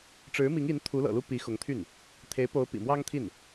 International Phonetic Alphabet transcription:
ʈ͡ʂ ɻ̩˧˥ m i˧˥ ŋ i˧˥ n t̪ʰ u˧˥ l ɤ̰˨˩ l u˥ p i˧˥ x ʊ˧˥ ŋ t̪ʰ y˥˩ n | t̪ʰ e˧˥ ɪ̯ p o˧˥ ʊ̯ p ḭ˨˩ m w ɑ˥ ŋ t̪ʰ i˥˩ n

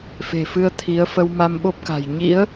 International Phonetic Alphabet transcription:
f e̤˨˩ f ɨ˧ ə̯ t̪ʰ i˨˦ ə̯ f ə˧ w m a˧ m ɓ o˦˥ p̚ k a̤˨˩ j ɲ ḭ˧˥ ə̯

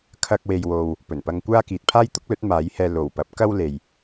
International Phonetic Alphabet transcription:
kʰ ɐ˥ k̚ w e˧ j w o˧ w | p ɵ˨˩ n p ɐ˧ ŋ kʷ aː˥ k iː˨ t̚ pʰ aː˥ j t̪ ʊ˥ k̚ l ɵ˨˥ t̚ m aː˨˥ j h ɛː˧ l o˨˩ w p ɐ˨˥ p̚ k ɐ˥ w l e˨ j

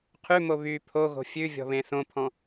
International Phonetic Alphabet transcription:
qʰ ʉ m o β y pʰ o ɣ o̤ fʲ ʉ vʲ ɔ̤ β ẽ θ õ pʰ ɔ̃

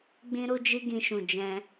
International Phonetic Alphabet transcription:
ɡ͡b ĩ˦ ɾ u˦ d͡ʒ i˦ ɡ ĩ˧ ʃ ũ˨ d͡ʒ ɛ̃˧

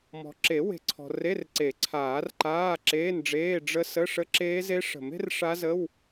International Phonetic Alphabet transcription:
m ɔ̤˨ ǁ e˨˩˦ w e̤˨ ǀʰ ɔ̤˨ r e˧˥˧ r ǀ e˨˩˦ ǀʰ aː˨˩˦ r ǃ aː˧˥˧ ǁ eː˧˥˧ n ɖ͡ʐ eː˧˥˧ ɖ͡ʐ ə˦˥ s ə˧˥˧ ʂ ə˦˥ ǁ eː˦˥ z e˦˥ ʂ ə̤˨˩˦ m e̤˦˥ r ʂ a˦˥ z ə˧˥˧ w

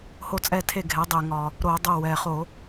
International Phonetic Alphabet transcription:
h o˦˨ t͡sʼ ɛ˦˨ tʰ e˦˨ ɡʱ ɛ˩˧ dˤ ɛ˨˩ ŋ ɒ˨˩ | ɾ o˧˩˧ dˤ o˦˨ w ɛ˨˩ χ o˧˩˧

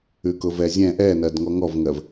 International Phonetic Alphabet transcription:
ʉ k ʊ v ɛ zʲ ɛ̃ ʔ ɛ n ɜ d ŋ ɔ ŋ ɔ v ŋ ɜ v

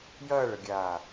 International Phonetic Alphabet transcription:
j ɐː ɭ ə ɡʲ aː

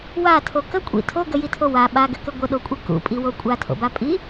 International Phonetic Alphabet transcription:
w a tʰ o k ə kʷʼ ḭ tʰ o ɡ ə j i tʰ o w a ɓ a ɡ ɘ k ɘ ɡʷ ə ɗ o kʷʼ ɨ k ṵ pʼ i w o kʷʼ a tʰ o̰ b a pʼ i

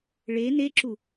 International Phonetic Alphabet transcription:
ɭ e n e ǁ u

